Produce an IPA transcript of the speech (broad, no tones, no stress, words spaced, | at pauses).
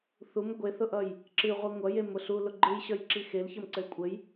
θum ɡʷeθʊʔʌj | ǁɨʁʷi ŋʷʌjemʊ ɬu lʊɡ͡ǃɨjɕʌjǁi xelçʌm ǀɘlkʷʼɘj